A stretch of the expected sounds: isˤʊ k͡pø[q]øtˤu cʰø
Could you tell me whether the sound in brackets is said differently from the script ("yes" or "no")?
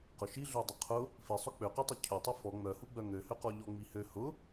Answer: no